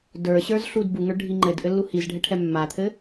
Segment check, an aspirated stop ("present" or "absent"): present